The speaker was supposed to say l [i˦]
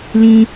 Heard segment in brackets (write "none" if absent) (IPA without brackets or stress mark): ĩ˦